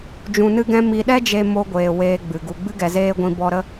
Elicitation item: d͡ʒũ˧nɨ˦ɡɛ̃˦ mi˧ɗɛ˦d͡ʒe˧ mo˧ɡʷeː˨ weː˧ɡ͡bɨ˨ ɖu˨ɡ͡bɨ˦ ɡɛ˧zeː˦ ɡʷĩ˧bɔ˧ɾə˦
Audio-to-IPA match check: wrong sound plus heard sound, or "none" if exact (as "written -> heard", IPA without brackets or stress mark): ɖ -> ɡ